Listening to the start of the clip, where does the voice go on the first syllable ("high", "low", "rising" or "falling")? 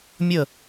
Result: falling